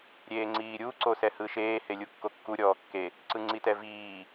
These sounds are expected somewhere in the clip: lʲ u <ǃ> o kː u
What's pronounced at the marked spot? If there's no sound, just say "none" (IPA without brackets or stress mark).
kː